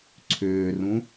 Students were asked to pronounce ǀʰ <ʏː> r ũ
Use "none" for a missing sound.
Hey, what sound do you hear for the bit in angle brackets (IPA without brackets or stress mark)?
ʏː